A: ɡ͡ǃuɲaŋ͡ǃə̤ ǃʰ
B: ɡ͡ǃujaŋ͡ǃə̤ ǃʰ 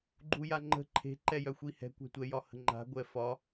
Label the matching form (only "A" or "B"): B